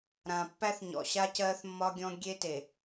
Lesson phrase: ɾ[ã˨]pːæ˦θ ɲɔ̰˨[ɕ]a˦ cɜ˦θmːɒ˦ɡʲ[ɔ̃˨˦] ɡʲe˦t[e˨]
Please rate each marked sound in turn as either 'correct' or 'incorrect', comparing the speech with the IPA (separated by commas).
correct, correct, incorrect, correct